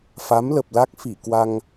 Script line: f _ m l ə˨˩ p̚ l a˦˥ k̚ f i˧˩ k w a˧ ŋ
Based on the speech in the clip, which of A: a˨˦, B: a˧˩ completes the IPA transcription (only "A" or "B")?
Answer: A